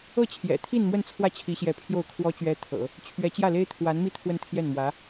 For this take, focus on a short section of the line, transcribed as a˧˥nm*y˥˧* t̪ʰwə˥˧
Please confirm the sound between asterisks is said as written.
no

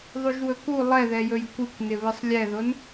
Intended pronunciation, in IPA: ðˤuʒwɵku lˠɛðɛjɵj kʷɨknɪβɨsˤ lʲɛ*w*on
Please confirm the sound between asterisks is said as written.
no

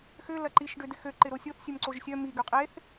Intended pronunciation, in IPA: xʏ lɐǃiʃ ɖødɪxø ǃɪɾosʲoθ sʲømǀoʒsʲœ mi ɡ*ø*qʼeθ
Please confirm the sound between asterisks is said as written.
yes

